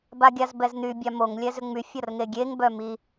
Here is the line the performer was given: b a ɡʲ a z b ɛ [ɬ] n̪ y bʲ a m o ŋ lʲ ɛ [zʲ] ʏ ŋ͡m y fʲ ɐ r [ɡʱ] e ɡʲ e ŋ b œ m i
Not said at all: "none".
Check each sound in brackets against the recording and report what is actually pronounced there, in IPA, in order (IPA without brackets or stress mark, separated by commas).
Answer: z, z, ŋ